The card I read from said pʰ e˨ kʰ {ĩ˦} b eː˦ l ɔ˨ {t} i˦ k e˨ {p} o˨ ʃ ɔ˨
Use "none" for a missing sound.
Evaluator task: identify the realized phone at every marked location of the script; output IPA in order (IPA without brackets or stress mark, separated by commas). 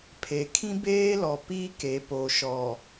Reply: ĩ˦, p, p